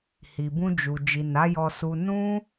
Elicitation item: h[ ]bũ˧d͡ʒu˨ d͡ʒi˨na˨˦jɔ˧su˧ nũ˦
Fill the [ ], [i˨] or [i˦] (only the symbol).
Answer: i˨